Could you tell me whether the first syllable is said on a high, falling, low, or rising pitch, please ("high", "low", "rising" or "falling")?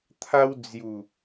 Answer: high